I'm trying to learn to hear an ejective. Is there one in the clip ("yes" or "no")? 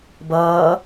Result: no